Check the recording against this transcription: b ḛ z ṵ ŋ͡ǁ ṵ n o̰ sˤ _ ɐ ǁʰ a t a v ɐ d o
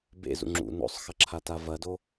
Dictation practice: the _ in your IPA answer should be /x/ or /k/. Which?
x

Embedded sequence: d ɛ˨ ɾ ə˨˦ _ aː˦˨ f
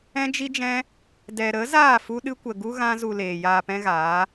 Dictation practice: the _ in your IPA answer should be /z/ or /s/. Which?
z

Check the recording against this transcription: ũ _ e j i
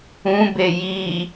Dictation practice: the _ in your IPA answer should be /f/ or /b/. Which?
b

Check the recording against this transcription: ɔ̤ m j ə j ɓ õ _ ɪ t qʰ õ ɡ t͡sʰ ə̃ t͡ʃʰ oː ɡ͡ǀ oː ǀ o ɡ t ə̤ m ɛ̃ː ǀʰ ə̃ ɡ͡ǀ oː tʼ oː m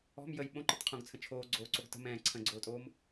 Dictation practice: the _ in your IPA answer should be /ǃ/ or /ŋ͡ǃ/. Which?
ǃ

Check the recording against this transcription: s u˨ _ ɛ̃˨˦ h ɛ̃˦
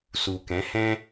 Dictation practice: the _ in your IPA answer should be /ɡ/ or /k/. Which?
k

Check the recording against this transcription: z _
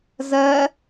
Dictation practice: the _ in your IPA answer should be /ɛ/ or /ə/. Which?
ɛ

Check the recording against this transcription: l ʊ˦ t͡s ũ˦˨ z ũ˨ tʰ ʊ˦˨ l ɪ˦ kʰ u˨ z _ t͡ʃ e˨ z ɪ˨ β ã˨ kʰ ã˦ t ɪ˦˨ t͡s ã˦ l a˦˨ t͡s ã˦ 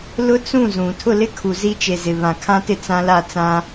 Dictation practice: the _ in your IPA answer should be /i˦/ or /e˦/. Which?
i˦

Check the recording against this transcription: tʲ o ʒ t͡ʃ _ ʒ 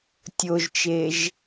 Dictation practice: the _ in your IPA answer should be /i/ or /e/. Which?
e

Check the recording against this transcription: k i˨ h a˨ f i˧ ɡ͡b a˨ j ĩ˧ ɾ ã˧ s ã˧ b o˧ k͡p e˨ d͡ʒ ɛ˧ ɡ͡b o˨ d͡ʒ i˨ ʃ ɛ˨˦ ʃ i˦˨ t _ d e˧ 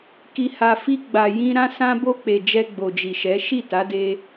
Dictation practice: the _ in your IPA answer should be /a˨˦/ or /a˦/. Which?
a˨˦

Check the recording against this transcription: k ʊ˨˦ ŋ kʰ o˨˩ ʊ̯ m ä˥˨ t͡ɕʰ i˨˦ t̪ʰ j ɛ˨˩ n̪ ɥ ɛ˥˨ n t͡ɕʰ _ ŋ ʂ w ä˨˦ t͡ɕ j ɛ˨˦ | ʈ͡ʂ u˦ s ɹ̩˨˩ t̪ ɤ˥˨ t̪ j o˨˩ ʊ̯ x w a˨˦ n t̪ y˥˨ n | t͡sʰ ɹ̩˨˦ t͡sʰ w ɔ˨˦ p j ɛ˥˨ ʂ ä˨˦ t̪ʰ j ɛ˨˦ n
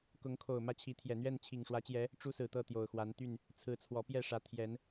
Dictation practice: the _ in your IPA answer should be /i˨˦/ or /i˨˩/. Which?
i˨˩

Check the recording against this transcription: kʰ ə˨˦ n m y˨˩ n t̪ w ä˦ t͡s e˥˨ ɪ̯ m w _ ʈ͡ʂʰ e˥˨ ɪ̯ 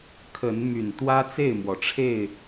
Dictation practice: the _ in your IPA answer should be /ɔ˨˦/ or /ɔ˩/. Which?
ɔ˩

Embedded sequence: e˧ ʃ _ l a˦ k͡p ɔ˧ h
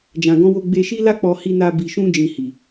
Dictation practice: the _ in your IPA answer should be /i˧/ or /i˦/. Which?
i˦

